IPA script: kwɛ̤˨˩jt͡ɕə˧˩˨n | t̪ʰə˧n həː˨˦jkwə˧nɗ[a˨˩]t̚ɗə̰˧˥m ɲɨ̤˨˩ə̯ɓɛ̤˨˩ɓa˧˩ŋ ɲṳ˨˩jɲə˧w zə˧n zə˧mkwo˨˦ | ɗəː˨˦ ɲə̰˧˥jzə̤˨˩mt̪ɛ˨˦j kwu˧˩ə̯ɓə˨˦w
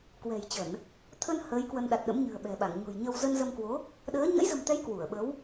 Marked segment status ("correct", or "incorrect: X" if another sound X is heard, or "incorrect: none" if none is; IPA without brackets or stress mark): correct